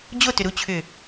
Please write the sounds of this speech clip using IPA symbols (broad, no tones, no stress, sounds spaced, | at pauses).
d͡ʑ o t ʏ ɾ u t͡ɕʰ ʏ